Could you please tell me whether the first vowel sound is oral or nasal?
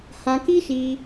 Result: nasal